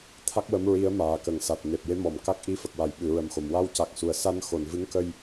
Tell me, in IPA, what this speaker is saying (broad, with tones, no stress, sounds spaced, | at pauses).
t̪ʰ a˦˥ k̚ w ə˧˥ m ɹ i˧˥ ə̯ m aː˨˩ k ə˨˩ ŋ s a˨˩ t̚ n e˨˩ p̚ j e˧˥ m ɔ˨˩˨ m k a˦˥ k̚ ʔ i˧˥ f ə˨˩ k̚ w a˨˩˨ j ɓ ɨ˨˩˨ ɹ ə˨˩ m x o˨˩˨ m w a˧ w c a˨˩ k̚ s u˨˩˨ ə̯ s a˧ n x o˨˩˨ n v ɨ˧˥ ŋ k ə˧ j